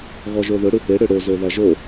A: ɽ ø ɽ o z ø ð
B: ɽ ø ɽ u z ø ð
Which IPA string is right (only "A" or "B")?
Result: A